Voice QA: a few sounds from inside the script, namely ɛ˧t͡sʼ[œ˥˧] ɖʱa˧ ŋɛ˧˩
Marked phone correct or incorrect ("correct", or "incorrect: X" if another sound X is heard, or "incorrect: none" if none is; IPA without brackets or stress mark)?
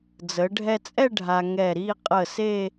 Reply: incorrect: ɛ˥˧